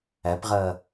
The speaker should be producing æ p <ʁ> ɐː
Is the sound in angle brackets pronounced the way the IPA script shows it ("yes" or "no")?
yes